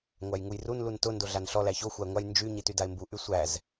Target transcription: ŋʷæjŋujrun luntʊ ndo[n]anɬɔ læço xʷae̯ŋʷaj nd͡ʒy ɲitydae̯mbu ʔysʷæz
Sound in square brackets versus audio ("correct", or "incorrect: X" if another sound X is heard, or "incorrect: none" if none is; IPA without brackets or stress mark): incorrect: ɮ